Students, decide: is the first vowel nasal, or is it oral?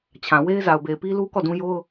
nasal